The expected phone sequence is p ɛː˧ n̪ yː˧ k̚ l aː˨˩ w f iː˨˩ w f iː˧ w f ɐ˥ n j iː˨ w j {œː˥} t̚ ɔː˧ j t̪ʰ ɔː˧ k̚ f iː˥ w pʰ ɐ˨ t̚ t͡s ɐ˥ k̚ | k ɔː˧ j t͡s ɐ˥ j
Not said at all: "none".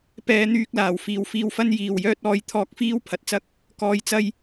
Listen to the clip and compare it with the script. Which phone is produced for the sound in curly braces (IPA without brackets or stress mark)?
œː˥